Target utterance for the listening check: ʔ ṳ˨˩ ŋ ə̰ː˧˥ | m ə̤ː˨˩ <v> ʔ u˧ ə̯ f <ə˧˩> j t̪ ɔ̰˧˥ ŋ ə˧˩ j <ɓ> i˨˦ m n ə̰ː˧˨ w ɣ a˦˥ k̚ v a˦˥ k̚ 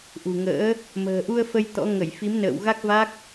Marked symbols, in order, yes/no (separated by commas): no, no, no